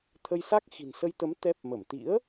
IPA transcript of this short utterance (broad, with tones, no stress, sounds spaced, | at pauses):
t̪ʰ ə˧ j s a˦˥ k̚ x i̤˨˩ n s ə˧ j t̪ ə˨˦ m t̪ ɛ˦˥ p̚ m ə˧˩ m t̪ ḭ˧˥ ə̯